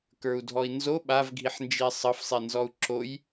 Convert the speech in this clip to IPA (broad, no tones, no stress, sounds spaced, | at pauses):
k ə˞ u̯ dʱ ɔ i̯ n z o ɓ a v ɡʱ i ħ n d͡ʒ i sˤ ɤ f sˤ i n z ɔ u̯ ǁ o j